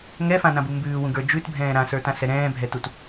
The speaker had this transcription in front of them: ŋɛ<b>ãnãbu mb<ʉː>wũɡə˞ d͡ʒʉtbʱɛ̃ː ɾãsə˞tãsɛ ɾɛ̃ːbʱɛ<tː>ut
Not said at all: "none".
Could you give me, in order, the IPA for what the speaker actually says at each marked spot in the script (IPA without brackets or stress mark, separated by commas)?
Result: f, ʉː, t